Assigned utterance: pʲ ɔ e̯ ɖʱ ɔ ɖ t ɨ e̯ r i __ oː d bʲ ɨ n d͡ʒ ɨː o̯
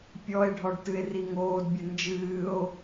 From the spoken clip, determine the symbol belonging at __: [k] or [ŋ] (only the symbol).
ŋ